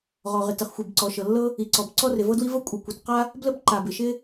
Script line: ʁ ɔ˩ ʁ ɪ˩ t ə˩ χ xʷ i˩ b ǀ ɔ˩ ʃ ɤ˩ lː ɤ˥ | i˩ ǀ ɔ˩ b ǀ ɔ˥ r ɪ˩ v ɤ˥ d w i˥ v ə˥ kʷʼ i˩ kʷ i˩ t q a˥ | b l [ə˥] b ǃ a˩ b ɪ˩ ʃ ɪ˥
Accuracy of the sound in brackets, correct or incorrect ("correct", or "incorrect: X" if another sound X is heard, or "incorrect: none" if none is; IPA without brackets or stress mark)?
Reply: correct